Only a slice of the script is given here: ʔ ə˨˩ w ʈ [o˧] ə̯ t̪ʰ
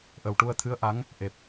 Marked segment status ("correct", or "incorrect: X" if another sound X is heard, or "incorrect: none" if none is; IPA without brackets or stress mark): incorrect: u˧